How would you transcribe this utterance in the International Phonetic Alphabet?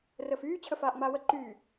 rəːfyː t͡ɕʰəfaːʔŋ͡maːwə ǃyː

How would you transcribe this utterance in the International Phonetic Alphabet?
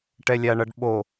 ʈɛlʲaɳʌɖɓo

